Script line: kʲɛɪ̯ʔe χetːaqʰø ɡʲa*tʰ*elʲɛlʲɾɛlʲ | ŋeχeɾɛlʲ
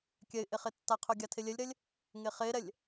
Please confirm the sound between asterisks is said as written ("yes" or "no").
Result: yes